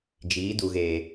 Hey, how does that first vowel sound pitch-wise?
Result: rising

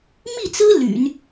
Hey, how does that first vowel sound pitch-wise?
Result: falling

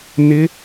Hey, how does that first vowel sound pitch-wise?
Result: rising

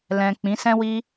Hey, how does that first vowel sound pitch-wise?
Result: low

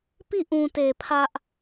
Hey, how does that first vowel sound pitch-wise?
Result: falling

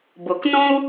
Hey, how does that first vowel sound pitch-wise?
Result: low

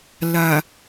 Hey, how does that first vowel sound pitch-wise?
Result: low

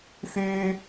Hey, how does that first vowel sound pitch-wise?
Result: low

